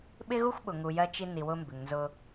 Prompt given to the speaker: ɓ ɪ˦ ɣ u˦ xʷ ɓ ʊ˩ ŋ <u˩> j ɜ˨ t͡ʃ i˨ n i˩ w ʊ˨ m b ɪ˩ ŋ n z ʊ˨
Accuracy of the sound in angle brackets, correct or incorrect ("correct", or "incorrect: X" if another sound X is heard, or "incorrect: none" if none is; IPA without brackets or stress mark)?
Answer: correct